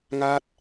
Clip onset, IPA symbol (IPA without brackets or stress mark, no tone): ŋ